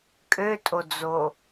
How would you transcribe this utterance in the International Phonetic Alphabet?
kʼøtʼod͡zo

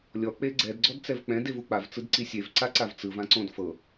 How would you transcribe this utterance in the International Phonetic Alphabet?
lʲɔ k͡peɡ͡ǀɛd ɡ͡ǀɔdt͡sɛvk͡pɛ̃d evuk͡pav t͡sɯdǀisʲev ǀaǀavt͡sɯv ãǀõdfɤ

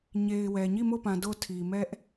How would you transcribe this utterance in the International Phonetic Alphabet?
ɲe˨ɪ̯wɛ˨ ɲi˦˨mo˦˨pã˨ do˦˨tʰi˨mɛ˦ʔ

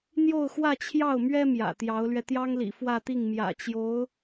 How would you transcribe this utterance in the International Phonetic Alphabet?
n̪jo˥˧ʊ̯xwä˥˧t͡ɕʰjɑ˥˩ʊ̯mɥɛ˥ mjä̰˨˩t̪jɑ˧˥ʊ̯lɥɛ˧ t̪jɑ˥ŋlḭ˨˩ fwä˥˧t̪i˥˩ŋmjä̰˨˩t͡ɕjo˧˥ʊ̯

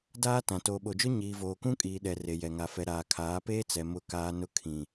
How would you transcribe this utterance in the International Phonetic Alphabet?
daː˦tã˨ toː˨ɓo˨d͡ʒʊ˦ ɲiː˨voː˨kũ˦ kʼiː˨ɗɛ˨ re˨jɛ˨ŋa˨ fɛ˨ɾaː˨kʰaː˨˦ peː˦t͡sɛ˨ mʊ˦˨kaː˦nʊ˦ kʰĩ˨

